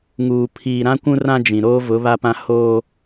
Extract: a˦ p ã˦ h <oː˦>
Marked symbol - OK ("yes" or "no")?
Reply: yes